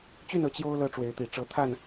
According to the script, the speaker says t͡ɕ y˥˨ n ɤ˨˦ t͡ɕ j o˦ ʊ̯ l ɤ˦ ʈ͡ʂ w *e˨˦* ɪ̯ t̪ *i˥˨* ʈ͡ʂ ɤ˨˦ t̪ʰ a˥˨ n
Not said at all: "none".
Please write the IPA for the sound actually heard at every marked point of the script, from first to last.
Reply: e˨˦, i˨˩

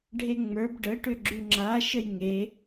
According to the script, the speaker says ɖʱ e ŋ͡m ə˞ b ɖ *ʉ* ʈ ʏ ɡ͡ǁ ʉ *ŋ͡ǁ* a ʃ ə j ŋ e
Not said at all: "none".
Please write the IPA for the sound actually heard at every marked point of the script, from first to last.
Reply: ə, ŋ͡ǁ

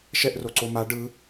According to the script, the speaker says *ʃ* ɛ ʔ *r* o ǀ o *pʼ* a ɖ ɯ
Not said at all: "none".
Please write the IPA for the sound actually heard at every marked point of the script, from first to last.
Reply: ʃ, r, m

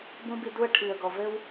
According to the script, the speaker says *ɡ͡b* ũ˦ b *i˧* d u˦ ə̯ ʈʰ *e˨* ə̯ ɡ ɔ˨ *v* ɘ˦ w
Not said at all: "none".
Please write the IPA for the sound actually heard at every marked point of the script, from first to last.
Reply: b, i˧, i˨, v

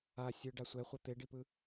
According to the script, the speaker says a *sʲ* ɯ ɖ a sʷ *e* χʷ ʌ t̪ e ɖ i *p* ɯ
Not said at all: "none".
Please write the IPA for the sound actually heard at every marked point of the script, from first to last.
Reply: sʲ, ɛ, p

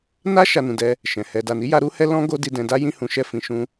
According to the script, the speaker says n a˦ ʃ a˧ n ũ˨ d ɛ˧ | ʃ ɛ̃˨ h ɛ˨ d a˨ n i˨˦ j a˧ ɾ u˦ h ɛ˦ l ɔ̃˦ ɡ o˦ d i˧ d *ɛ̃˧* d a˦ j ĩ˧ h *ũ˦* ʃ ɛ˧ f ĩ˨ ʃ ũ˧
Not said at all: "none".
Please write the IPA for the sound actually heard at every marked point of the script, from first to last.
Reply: ɛ̃˧, ũ˨

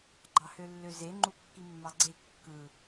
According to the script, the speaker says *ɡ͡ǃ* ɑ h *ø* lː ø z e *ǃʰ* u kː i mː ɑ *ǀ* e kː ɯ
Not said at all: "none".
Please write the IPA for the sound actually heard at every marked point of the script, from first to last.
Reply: ɡ͡ǃ, ø, ŋ͡ǃ, ɡ͡ǀ

